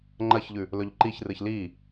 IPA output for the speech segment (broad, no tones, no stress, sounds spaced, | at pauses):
ŋ͡ǃ ɐ ç ʎ ʉ | l ɵ ʎ ǃ i ç r ɨ ç l i